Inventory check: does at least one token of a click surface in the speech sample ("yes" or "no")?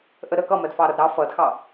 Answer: no